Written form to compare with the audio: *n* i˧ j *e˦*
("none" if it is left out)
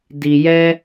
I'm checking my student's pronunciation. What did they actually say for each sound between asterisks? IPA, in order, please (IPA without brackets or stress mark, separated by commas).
d, ɛ˦